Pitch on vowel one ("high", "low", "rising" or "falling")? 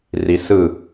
low